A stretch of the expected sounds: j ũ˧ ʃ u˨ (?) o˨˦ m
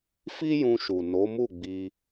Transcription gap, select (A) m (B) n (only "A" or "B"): B